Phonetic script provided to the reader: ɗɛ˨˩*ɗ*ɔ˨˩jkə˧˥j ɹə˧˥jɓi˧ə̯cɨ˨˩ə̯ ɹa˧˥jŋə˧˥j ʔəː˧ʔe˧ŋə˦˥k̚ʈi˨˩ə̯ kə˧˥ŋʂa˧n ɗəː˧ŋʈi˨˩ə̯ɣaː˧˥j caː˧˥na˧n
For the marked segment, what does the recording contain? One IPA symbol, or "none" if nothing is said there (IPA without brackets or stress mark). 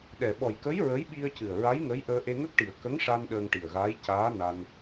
ɓ